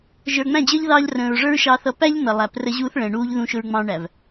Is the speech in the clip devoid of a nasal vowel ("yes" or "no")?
no